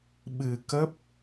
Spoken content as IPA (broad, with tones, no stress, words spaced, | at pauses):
ɓɨ˧kə˦˥p̚